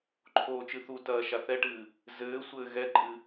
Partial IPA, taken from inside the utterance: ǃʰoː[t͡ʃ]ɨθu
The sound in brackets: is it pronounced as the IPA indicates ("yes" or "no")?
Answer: yes